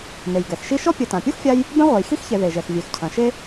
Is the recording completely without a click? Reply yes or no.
yes